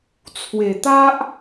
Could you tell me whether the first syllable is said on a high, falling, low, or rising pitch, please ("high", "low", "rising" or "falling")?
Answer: low